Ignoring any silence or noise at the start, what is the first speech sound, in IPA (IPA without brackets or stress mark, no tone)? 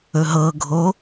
ɵ